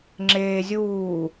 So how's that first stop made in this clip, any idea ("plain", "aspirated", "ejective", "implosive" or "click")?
click